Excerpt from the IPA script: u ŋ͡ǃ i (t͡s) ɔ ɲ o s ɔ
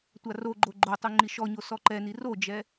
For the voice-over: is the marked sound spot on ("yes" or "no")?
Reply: no